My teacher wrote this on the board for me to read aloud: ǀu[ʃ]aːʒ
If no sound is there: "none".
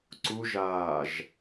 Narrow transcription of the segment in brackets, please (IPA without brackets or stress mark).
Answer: ʒ